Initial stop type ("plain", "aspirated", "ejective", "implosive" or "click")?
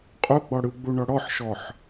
ejective